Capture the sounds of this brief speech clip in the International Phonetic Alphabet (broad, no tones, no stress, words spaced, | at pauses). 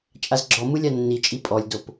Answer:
t͡ʃʼazɡ͡ǁɔ mɯlʲanːi t͡ʃʼipʼɔlʲdop